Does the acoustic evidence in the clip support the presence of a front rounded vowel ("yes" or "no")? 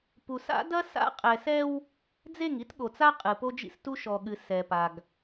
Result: no